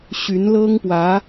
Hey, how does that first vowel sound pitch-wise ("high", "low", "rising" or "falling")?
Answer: rising